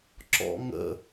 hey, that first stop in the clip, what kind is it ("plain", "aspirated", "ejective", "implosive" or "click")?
click